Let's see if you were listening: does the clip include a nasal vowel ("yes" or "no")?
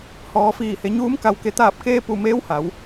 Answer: no